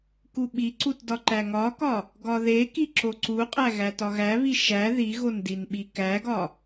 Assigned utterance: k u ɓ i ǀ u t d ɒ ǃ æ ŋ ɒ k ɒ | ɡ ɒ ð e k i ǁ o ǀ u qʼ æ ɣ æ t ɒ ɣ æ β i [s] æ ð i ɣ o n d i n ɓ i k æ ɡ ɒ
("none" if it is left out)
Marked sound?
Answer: ʃ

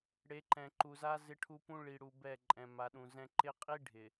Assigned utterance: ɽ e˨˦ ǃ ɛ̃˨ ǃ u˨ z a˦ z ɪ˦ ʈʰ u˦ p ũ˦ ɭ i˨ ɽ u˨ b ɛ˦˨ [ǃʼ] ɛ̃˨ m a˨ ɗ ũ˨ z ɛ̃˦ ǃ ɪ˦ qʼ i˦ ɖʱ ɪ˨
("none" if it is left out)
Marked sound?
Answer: ǃʼ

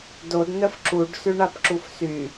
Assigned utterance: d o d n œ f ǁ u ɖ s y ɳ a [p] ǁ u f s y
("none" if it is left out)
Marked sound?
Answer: p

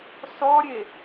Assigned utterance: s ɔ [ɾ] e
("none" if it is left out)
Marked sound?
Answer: ɾʲ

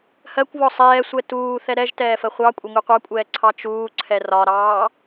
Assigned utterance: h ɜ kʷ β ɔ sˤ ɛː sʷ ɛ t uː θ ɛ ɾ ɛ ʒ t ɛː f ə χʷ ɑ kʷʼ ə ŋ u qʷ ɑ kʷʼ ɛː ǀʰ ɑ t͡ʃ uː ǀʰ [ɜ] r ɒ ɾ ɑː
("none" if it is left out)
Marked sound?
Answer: ɛ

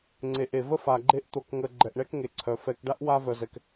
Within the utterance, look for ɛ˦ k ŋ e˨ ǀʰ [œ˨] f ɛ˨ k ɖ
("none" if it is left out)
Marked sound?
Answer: œ˨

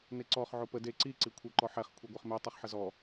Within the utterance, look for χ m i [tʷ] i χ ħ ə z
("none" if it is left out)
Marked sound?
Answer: tˤ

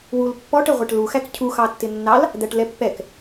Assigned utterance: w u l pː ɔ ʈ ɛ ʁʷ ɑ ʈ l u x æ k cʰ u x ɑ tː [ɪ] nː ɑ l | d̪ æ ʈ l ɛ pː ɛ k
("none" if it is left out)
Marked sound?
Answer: ɪ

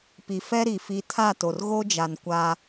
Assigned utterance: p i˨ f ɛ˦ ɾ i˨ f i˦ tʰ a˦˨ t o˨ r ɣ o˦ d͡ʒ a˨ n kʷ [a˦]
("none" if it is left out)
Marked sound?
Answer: a˦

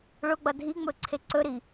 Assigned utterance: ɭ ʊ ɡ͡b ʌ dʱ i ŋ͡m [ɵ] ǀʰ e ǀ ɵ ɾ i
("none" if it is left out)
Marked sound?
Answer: ɵ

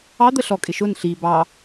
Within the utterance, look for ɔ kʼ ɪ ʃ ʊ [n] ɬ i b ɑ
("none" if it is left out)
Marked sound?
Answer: n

